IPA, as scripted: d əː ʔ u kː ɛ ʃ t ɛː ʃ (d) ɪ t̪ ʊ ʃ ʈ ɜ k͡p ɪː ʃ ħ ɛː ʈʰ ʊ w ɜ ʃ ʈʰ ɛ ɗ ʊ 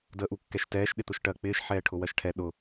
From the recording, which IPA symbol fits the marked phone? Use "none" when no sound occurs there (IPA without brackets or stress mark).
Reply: ɗ